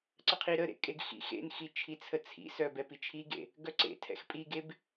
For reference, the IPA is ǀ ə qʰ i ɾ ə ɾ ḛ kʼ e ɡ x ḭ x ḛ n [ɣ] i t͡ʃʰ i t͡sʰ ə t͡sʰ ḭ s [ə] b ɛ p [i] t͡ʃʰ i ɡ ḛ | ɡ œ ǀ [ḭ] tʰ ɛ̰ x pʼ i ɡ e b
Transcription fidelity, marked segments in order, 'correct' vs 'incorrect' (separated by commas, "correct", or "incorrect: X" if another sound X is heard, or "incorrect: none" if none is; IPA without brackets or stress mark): incorrect: x, incorrect: œ, correct, incorrect: ḛ